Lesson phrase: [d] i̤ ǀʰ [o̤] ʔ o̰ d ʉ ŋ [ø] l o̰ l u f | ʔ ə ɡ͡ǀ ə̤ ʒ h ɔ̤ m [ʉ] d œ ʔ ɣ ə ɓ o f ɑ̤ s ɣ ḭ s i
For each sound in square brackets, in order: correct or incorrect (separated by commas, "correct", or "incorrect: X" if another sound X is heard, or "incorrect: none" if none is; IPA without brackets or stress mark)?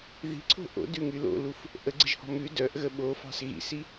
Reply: incorrect: ð, correct, incorrect: y, correct